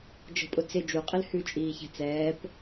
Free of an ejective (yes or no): no